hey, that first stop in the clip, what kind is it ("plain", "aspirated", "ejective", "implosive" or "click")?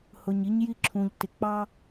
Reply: click